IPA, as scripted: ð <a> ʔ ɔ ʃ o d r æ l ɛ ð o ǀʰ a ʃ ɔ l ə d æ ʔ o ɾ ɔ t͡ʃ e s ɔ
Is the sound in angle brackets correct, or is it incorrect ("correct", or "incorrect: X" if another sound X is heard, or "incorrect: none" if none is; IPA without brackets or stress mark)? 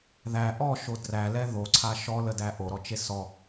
incorrect: æ